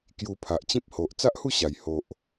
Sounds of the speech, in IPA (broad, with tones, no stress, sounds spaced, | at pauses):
k j u˧ pʰ a˨ ʔ t͡ɕ ĩ˦ p̚ h o˨ ʔ t͡s a˦ ʔ h u˥˧ ɕ a˨˩ j h o˨ ʔ